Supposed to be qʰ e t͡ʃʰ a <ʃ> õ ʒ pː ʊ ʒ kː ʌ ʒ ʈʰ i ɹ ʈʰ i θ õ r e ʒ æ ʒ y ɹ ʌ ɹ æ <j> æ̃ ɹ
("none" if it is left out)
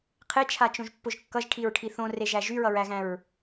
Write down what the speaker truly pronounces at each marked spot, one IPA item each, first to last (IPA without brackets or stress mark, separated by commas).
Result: t͡ʃ, ɣ